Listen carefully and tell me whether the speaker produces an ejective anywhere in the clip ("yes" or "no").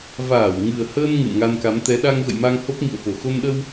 no